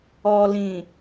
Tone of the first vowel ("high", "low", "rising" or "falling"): low